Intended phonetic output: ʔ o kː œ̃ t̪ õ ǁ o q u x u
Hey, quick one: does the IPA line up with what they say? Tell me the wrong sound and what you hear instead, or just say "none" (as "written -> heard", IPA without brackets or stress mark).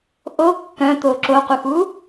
õ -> o